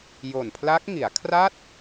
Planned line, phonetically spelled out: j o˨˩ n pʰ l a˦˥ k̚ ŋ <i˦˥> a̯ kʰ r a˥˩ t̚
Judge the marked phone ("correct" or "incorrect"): incorrect